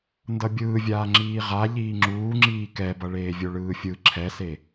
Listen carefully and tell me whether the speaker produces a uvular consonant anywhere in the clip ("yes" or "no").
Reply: yes